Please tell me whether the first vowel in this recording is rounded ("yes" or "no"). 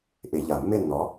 no